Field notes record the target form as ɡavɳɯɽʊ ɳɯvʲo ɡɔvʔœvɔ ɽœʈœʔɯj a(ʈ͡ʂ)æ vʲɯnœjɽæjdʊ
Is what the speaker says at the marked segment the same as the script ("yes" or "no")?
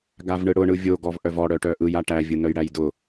no